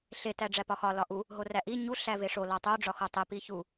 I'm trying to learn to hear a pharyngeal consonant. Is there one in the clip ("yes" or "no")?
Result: no